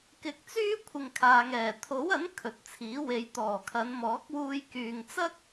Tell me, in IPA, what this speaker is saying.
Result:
k ɪ˨˥ k̚ t͡s yː˥ kʷʰ ɪ˨ ŋ kʰ aː˨ ŋ ɛː˨˩ t̪ʰ o˨˥ w ɐ˨˥ n kʰ ɵ˨ t̚ t͡sʰ iː˨˥ w e˨˧ j t̪ ɔː˨˩ kʰ ɐ˨˧ n m ɔː˨˥ k̚ w uː˧ j k yː˨ ŋ t͡s ɐ˥ k̚

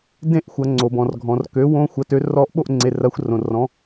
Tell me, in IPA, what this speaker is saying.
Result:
d ẽ˥˨ ʔ xʷ ɐ˨˩˦ ŋ͡ǀ o˩ b ɔ̃˩ r ɡʱ ɔ̃˩ r k ø˩˥ w õ˦˥ xʷ ɐ˩˥ t ø˩˥ r ɔ˦˥ ʔ ɓ o˥˨ ʔ ŋ͡ǀ e˩˧˩ r ɐ˩˥ xʷ r õ˩ r ɔ̃˩˥

